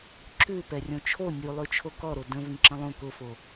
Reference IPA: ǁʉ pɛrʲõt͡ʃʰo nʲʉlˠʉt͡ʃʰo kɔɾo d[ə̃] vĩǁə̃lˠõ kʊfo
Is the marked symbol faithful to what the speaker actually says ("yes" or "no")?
yes